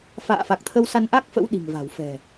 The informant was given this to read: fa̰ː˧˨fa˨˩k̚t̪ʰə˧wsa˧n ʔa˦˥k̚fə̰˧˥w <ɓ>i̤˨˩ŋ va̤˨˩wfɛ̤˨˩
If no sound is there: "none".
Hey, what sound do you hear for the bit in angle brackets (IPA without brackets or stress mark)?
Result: ɗ